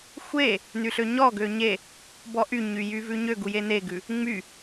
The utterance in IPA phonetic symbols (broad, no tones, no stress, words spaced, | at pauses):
xʷe | nyɬøɲɔɡø ɲe | bɔʔyɲy jyvʉɲøɡu jeneɡʉ | ŋ͡my